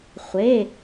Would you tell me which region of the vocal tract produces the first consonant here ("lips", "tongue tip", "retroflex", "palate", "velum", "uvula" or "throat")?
uvula